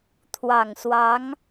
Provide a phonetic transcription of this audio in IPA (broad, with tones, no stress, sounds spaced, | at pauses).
t̪ʰ w ɑ˨˩ ŋ s w ɑ˧˥ ŋ